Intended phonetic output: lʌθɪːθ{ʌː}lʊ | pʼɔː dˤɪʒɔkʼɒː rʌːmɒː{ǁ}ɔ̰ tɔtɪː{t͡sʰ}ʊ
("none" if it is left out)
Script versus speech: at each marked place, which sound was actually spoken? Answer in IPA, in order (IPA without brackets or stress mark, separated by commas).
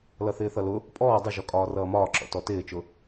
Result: ʌ, ǁ, t͡ʃ